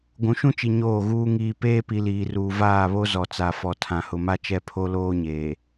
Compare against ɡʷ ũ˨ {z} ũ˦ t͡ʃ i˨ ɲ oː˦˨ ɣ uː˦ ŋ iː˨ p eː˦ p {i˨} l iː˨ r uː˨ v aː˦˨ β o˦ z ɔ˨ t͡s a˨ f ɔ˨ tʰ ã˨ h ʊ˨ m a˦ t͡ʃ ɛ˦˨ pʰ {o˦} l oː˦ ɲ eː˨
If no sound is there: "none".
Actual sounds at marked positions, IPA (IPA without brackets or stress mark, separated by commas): ʃ, i˨, o˦